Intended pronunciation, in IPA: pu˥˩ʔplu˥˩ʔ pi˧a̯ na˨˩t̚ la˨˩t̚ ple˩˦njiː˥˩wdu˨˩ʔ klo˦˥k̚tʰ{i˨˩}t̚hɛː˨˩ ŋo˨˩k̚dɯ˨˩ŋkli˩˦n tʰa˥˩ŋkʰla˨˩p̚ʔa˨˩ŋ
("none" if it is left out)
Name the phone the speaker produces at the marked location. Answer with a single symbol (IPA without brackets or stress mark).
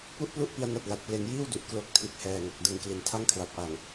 i˨˩